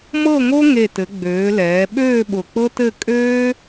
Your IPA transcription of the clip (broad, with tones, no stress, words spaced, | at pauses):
mɤ˥˧ŋo˥ ŋe˧˩tɘ˩˧ ɡ͡bøː˩˧lɛː˩˧ ɓøː˥˧ɓʊ˧˩k͡pɤ˥tɘ˥˧ kʼøː˥